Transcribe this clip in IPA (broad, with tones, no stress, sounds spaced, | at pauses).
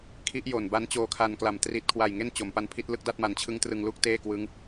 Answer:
kʰ i˦˥ ʔ j o˨˩ n b a˦˥ n t͡ɕ oː˧ kʰ a˧ n k l a˨˩ m t r i˨˩ t̚ kʰ w a˨˩ j ŋ e˥˩ n t͡ɕ o˩˦ m p a˦˥ n pʰ i˦˥ t̚ l ɯ˦˥ k̚ d a˥˩ t̚ m a˩˦ n t͡ɕʰ ɯ˦˥ ŋ t r ɯ˧ ŋ l uː˥˩ k̚ t eː˥˩ k w ɯ˦˥ ŋ